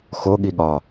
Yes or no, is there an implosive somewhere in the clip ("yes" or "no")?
yes